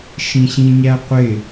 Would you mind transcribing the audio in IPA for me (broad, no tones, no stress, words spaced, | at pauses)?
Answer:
ʃĩɕĩɲæqʷɪ